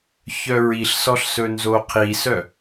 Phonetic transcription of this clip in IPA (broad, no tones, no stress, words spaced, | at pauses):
çœɹiɬsɔɬ sɵnzoqʰisœ